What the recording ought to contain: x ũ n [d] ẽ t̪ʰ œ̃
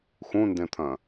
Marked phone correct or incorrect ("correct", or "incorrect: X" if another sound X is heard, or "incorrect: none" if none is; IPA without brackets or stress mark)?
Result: correct